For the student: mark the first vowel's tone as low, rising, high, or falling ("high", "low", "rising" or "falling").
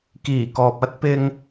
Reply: low